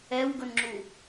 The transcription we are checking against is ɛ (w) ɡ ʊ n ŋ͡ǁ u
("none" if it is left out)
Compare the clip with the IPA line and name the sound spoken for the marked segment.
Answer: w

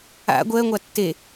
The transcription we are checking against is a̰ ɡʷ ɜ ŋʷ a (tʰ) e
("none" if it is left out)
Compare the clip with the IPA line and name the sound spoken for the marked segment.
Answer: tː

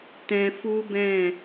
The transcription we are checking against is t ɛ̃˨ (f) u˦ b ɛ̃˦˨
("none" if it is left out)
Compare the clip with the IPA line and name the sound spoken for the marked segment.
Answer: f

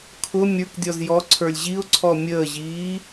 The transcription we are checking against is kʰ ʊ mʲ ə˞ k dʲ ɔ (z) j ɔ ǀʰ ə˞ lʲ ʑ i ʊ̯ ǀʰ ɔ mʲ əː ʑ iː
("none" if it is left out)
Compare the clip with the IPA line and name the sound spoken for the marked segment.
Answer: z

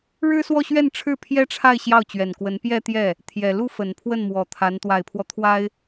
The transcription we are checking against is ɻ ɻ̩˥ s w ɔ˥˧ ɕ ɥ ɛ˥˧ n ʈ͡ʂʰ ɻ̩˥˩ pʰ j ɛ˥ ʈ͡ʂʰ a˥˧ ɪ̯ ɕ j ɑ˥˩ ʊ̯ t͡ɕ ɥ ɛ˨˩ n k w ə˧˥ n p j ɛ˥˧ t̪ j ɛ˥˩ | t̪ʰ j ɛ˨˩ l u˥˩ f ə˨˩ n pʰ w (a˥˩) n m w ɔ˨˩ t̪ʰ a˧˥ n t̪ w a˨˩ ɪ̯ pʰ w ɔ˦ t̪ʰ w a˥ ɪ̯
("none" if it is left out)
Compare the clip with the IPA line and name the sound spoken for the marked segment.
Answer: ə˥˩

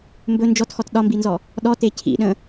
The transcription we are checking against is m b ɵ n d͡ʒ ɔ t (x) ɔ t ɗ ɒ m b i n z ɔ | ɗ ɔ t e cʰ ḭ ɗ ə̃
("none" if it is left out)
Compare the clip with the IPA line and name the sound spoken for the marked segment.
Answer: x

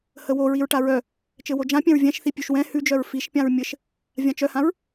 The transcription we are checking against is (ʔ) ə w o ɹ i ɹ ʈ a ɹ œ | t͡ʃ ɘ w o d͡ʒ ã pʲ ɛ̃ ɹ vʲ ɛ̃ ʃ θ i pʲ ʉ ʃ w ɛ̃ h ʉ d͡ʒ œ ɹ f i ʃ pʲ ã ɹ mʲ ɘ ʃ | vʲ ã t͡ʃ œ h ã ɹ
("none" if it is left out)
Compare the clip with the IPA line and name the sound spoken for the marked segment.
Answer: h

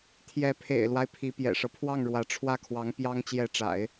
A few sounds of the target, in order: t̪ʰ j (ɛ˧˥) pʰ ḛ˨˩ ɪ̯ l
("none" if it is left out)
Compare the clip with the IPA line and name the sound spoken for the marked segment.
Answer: ɛ˧˥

